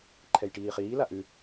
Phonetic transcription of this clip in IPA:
ǃʰ ɛ j ʈ iː χ iː l a ʔ ʉ

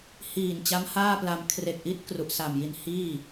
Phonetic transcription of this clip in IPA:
h iː˨˩ n t͡ɕ a˦˥ m h aː˥˩ p l a˧ m kʰ r e˨˩ k̚ ʔ i˦˥ t̚ k r u˨˩ ʔ s a˨˩ m j i˧ n h iː˥˩

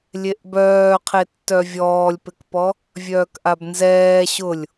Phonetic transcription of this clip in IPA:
lʲ e ʔ b œː qʰ e tː œ vʲ ɔː lʲ p ɪ k p ɔ | vʲ œː k ʔ a b n z ɛː ɕ ʊ lʲ

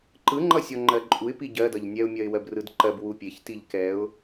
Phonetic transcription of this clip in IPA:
ǃ ɯ ŋ͡ǃ ʌ sʲ ɔ ŋ͡ǃ ɜ ǃʼ u ɪ̯ p i ɟ ɜ d ʌ ʎ nʲ ɛ ʊ̯ mʲ ɜ ɪ̯ w ɜ b r ɯ d ǃ ɜ b w u pʲ e ç t i ʎ k ɛ ʊ̯

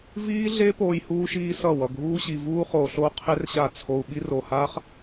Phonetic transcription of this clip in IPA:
v iː˦ ɮ e˦ p oː˦ j h uː˦ ʃ iː˦ s ʌ˦˨ w ʌ˧ ɡʱ uː˦ ɕ i˧ v uː˦ χ oː˧ ɬ oː˦ qʰ e˦ r ɕ a˦˨ t͡sʰ o˧ u̯ ɓ i˦ r o˧ h aː˦ χ

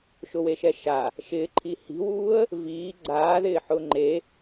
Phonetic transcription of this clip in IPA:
ʃ ʊ w e ʃ ɛ ʃ a | ʃ ɪː ǃʰ i h i̤ w uː ə̯ | v iː ɡ͡ǀ aː ð ɪː ħ ʊː ŋ͡ǃ e

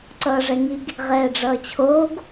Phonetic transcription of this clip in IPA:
ǀ ʌː ʐ ɛ ŋ i ɡ | ʁ ɛː ɖ͡ʐ ʌː t͡ɕʰ oː ɡ

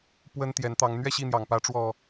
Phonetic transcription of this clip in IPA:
p w ə˦ n t̪ j ɛ˨˦ n t̪ ɑ˨˦ ŋ n̪ ɥ ɛ˥˨ ɕ i˥˨ n̪ j ɑ˨˩ ŋ p ä˨˦ ʈ͡ʂ w ɔ˨˩

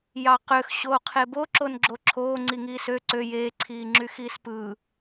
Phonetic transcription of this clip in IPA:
j ɑ q ø x ɕ oː qʰ e b o ǁ o n ɡ͡ǁ o ǁʰ oː ŋ͡ǀ i ŋ iː s ø ǀ ø j eː ǀʰ iː ŋ͡ǁ y x iː s p ɯː

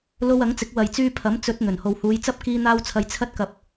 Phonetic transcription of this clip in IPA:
l o˧ w ɐ˨˥ ŋ t͡s ɪ˨˥ k̚ w ɐ˨ j t͡s yː˧ pʰ ɐ˨˥ m t͡s ɵ˨˥ t̚ n̪ ɵ˨˩ n h o˨ w h uː˨˧ j t͡s ɐ˥ p̚ k iː˧ n̪ aː˧ w t͡sʰ ɐ˨˧ j t͡sʰ ɐ˧ t̚ k ɐ˨ p̚

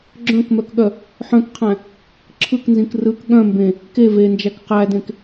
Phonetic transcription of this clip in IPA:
ɡ͡ǁ œ̃ k m œ k ɠ œ | ħ œ̃ k qʰ æ̃ | ǁʰ ɯ k n z ĩ k r ɯ k ɠ œ̃ m b ẽ | k e v e n d͡ʒ æ k q æ d ẽ k

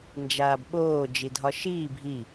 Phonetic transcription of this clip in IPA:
n d͡ʒ aː b ɓ oː d͡ʒ i dʱ ɒ ʃ iː bʱ i

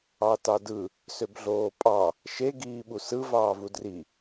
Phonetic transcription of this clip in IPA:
ɑ t ɑ d ɯ | s ø b ɮ oː pʼ ɑ | ʃ e ɡ iː ɓ u s ɯ v ɑː v u d r i

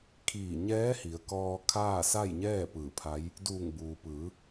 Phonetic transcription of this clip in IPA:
kʰ iː˧˩ ɲ ɛː˧˥ h i˩˧ ə̯ k ɔː˧ kʰ aː˥˨ s a˥˨ j ɲ ɛː˥˨ p ɯː˧˩ pʰ a˧˥ j | d uː˧˩ ŋ b uː˩ p ɯː˩˧

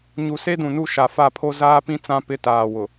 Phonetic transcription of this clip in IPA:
ɲ u˨ s e˦ d ũ˨ n u˦˨ ʃ a˨ f a˦˨ pʰ o˦ z aː˦ p ĩ˦ t͡s ã˦ p ɪ˦˨ t aː˨ w ʊ˨

